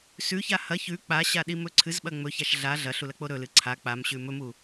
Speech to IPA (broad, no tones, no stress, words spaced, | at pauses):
sʉça hɐ çʉ k͡paɕaɗimɵ ǀʰɨzɓɐ ŋ͡mɵçaʃ ɮa ɮɐɬulɐk͡po ɾɵlɨ ǀʰa k͡pamɕʉ mɵmu